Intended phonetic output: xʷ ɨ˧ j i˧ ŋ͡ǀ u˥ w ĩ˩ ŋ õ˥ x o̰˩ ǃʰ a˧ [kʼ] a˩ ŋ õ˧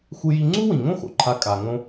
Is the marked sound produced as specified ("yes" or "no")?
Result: yes